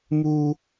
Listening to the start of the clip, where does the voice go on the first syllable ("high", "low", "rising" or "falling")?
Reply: high